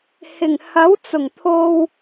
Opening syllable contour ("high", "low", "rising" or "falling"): low